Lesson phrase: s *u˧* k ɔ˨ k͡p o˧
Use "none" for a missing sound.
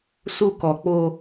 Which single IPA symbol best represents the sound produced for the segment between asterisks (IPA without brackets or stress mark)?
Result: u˧